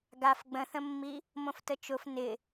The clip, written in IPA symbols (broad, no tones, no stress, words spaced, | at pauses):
ɡaf ɡ͡bə̃θə̃mːi | mõftət͡ʃʊf nɪ